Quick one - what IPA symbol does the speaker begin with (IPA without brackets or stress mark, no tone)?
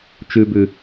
t͡ʃ